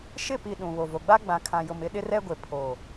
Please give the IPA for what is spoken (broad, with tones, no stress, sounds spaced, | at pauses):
ʃ ɪ˦˨ p i˨ ɗ ũ˨ β o˨ v o˨ ɡ͡b a˦ ɡ͡b ã˨ kʰ ã˨ j ʊ˨ m ɪ˦ ɗ ɪ˦ r ɛ˦ ɡʷ e˨ pʰ o˨